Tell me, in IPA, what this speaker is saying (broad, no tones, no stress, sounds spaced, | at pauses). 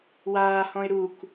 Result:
w aː h ɔ̃ ɪ̯ ɾ u k